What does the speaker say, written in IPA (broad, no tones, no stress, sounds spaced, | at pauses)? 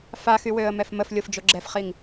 f a x y w ø ə̯ m ɛ f m ə f lʲ o f d͡ʒ o ɡ͡ǁ ɛ f χ i ŋ